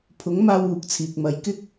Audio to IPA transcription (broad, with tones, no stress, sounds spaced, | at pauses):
pʰ ʊ˨˥ ŋ m aː˧ w uː˧ k̚ t͡sʰ iː˨ k̚ m ɐ˧ j k ɪ˥ k̚